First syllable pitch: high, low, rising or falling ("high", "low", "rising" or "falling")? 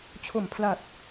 low